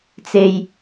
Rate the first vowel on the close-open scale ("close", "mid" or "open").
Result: mid